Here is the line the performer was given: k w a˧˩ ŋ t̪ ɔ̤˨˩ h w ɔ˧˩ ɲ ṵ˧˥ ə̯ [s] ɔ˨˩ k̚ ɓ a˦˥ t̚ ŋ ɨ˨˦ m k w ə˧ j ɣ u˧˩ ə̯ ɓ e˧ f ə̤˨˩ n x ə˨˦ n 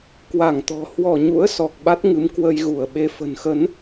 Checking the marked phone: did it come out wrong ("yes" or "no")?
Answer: no